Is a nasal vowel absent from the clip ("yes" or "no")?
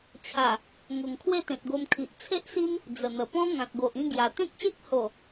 no